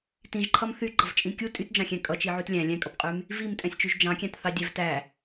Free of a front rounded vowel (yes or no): no